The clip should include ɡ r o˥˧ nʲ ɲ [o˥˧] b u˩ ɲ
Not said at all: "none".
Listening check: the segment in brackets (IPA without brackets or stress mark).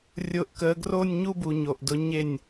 u˥˧